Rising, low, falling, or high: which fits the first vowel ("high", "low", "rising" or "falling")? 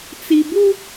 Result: low